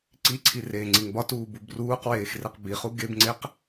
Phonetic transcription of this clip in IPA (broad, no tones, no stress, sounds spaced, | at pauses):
ǀ i ǀʰ i r eː ŋ͡ǀ i ŋ b ɒ t uː b u b r uː q w eː x r e q b i χ u ɡ e b ŋ͡ǀ e q